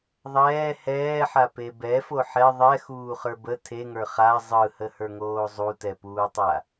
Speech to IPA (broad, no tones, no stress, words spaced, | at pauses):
ðˤɛː hɛːħape bɛfo ħɛ ðˤɛxuːχə˞ bə tʰeŋə˞ χa zˤɯhəhə˞ŋoː zˤutɛpuːtˤa